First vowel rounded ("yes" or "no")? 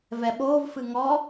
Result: no